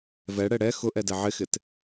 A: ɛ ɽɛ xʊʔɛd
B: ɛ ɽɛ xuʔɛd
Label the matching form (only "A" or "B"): A